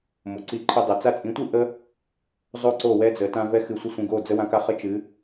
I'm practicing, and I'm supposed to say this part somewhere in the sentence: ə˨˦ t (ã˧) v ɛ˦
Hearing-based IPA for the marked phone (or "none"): ã˦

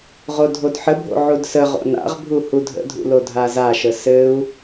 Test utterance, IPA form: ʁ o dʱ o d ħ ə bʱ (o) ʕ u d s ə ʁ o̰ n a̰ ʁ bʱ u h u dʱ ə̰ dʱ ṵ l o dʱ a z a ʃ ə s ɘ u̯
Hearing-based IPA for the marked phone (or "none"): o̰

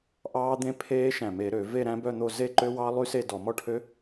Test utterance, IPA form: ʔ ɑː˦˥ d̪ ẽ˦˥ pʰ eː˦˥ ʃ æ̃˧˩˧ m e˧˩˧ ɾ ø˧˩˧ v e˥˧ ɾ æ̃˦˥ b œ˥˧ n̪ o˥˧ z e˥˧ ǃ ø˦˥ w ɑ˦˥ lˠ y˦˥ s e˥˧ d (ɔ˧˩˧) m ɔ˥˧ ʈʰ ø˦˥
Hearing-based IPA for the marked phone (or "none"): ɔ˧˩˧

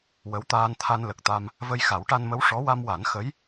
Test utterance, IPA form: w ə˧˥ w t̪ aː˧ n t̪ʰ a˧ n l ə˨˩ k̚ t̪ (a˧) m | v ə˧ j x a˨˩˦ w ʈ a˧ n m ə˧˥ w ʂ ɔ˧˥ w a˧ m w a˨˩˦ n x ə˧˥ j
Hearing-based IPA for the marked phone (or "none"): a˧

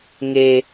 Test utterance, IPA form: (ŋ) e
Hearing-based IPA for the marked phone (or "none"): ŋ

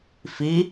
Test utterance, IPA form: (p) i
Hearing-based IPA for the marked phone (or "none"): f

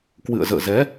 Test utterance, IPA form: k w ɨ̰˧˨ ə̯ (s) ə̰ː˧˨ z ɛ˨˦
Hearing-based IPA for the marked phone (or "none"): z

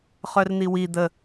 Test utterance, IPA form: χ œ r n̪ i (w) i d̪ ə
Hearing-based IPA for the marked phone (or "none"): w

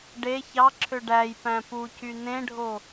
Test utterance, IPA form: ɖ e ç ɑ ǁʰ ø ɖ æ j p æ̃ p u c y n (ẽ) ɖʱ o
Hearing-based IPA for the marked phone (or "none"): ẽ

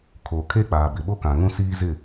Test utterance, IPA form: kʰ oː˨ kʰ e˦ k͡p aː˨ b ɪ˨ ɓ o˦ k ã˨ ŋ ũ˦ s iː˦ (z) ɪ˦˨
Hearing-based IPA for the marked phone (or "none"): z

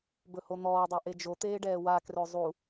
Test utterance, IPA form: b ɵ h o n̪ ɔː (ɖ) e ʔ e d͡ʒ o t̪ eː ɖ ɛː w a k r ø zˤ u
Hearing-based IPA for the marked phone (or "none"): dˤ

